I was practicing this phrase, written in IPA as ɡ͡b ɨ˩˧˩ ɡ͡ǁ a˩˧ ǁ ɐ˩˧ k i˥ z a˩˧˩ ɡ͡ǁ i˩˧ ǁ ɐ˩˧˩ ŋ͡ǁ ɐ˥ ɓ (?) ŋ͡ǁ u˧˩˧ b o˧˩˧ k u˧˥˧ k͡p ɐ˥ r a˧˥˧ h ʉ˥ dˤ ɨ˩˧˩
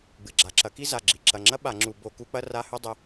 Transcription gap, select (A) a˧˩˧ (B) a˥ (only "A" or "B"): A